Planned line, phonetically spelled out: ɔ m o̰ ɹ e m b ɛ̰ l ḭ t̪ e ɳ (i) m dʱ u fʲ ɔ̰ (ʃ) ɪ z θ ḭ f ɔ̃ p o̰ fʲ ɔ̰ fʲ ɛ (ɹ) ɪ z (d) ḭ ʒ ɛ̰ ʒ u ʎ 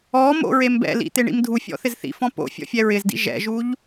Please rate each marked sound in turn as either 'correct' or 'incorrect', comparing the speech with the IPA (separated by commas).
incorrect, incorrect, correct, correct